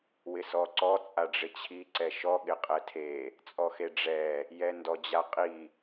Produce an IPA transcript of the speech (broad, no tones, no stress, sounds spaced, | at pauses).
w ɪ s ɔ ǀ ɔ t͡sʼ a ɖ͡ʐ ɪ t͡ɕʰ i ǀ ɛ ʃ ɔ ɠ ɪ qʼ ɛ tʰ e | t͡sʼ ɔ x e ɖ͡ʐ ɛ | j ɛ n d ɔ d͡ʑ a qʼ i